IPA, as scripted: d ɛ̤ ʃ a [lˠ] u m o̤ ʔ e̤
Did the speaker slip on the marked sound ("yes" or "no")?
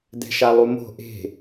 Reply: no